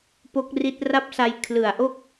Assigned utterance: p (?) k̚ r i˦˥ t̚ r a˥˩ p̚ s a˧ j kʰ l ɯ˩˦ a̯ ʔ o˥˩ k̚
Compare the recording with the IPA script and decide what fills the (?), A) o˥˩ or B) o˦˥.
B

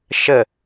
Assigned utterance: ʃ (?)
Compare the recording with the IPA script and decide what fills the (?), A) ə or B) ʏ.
A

